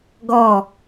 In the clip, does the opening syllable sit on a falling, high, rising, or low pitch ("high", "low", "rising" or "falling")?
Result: falling